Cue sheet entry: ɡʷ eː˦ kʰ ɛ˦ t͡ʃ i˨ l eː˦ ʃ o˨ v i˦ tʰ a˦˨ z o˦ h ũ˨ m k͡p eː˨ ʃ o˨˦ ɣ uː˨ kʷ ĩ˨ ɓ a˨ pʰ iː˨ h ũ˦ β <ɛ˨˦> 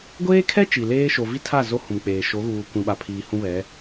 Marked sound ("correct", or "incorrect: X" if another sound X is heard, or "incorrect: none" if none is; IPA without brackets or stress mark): correct